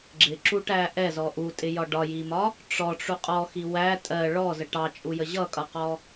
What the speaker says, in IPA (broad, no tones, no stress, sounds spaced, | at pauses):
ɡ͡ǁ ɪ ǁ u ʈ æ ʔ ɛ z ɔ ʔ u tʼ ɪ j ɒ ɖ ɒ j i m ɒ | ʈ͡ʂ ɔ ʈ͡ʂ u qʼ ɔ x i w æ tʼ ɜ ɭ ɔ z ə ʈ ɑ t͡ʃʼ u j ə ʑ ʌ kʼ ʌ q ɔ